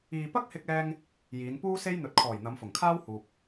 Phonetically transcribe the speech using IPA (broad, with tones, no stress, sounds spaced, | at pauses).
iː˨ p ɐ˥ k̚ h ɪ˧ k̚ ɛː˧ ŋ | j iː˨˧ n p uː˥ s e˥ j n̪ ɵ˨ t̚ kʰ ɔː˨˩ j n̪ ɐ˨˧ m f ʊ˨˩ ŋ kʰ aː˥ w h uː˨ p̚